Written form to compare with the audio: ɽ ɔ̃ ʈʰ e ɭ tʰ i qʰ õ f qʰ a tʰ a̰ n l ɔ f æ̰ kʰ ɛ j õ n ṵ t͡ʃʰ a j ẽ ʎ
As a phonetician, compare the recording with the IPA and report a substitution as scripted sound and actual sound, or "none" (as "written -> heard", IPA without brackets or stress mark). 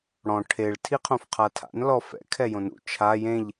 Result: æ̰ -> ɛ̰